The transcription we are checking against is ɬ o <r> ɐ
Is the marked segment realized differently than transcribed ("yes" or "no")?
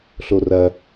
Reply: no